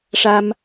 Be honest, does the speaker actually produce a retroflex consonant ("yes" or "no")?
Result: yes